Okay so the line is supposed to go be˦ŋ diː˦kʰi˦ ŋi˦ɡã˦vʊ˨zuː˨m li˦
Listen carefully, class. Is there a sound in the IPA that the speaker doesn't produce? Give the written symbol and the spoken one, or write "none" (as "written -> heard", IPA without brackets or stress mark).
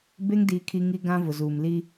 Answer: none